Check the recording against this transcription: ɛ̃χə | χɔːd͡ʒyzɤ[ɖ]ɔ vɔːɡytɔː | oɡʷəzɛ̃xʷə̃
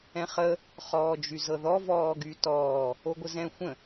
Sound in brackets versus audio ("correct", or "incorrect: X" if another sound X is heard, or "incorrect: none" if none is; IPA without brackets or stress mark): incorrect: ð